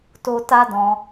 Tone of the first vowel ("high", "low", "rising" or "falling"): high